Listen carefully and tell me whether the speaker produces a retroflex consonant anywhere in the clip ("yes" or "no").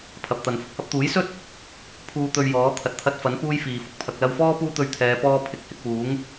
no